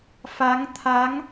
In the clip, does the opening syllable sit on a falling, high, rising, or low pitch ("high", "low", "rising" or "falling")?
rising